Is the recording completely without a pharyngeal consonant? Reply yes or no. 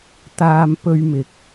yes